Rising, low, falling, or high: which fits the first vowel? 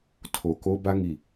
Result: low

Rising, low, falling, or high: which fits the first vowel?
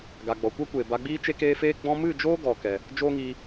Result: low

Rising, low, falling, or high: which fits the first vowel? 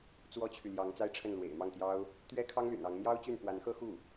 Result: high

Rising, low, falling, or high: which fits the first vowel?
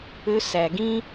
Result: high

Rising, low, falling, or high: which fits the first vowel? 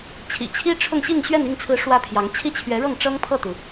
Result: low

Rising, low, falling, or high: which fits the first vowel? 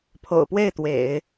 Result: low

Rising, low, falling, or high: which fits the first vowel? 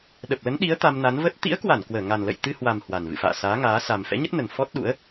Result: low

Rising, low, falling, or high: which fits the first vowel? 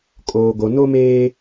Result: low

